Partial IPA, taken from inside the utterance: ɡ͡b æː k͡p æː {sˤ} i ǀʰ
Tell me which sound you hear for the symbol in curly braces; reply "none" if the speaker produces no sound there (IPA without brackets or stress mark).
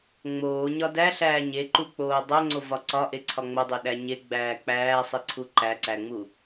sˤ